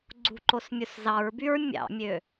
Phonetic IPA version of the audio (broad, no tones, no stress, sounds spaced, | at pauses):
ɡ͡ǀ ṳ ǃ o s mʲ u s z ɑ ɹ b y ɹ mʲ ɑ̰ mʲ ø